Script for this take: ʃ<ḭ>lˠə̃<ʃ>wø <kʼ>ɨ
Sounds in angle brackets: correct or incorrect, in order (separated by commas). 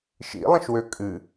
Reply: correct, correct, correct